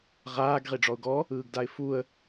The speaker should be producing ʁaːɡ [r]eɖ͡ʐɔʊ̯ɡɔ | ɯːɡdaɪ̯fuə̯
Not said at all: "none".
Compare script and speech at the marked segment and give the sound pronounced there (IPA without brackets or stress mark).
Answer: ʁ